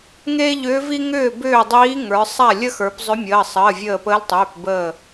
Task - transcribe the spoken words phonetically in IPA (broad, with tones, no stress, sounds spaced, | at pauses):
ŋ eː˥ ʎ ʏː˧˥ v i˥ ŋ ʏː˥˨ b ʏː˥˨ dˤ iː˧˥ ŋ ə˞˩˧ sˤ a˥˨ lʲ ə˥ x ə˞˩˧ p zˤ ʏ˧˥ mʲ əː˩˧˩ sˤ əː˩˧˩ vʲ əː˧˩ p əː˧˥ l tˤ ʏː˩˧˩ p b əː˧˩